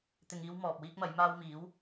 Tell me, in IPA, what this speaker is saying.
t̪ɪ˨ŋiː˧w mɔː˨p̚wiː˥k̚mɐ˨˥j maː˧w miː˨˥w

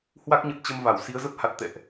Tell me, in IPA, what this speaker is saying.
hwa˦˥k̚ɲə˨˩t̚ t͡ɕə˧mva˧˩w si˨˦ə̯zə˦˥p̚ ha˨˩t̚ t̪ɛ̰˧˨ʔ

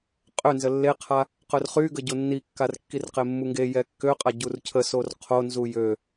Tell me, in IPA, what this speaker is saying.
qʼønzə lːeqʰa | qœrχyɡə ɟonːikːar kːirqemːuŋɡe jɛkːøqʼa ɟurcʰəsor qʰonzu jø

